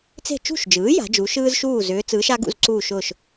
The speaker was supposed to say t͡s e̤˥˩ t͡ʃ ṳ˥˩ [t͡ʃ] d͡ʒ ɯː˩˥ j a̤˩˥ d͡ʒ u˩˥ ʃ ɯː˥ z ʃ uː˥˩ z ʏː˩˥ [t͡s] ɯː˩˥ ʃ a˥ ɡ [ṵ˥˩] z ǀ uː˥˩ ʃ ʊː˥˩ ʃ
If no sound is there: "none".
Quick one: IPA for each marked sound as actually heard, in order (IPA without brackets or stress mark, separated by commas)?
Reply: ʃ, t͡s, ṵ˥˩